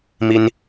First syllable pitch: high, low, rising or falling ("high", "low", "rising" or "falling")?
high